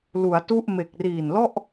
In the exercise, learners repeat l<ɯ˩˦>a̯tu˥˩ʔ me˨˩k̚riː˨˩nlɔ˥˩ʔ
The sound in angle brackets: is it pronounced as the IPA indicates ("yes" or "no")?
no